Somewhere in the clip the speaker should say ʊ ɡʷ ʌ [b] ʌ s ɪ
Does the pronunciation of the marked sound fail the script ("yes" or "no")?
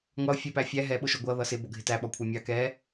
yes